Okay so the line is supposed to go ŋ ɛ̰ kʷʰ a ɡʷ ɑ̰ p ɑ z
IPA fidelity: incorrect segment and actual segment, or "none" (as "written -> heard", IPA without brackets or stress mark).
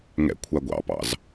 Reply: ɑ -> ɑ̰